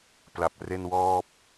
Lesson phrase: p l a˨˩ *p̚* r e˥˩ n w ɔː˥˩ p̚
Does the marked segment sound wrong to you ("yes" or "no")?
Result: no